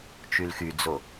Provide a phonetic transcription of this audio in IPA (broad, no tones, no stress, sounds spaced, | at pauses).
t͡ʃ y l x y d͡z o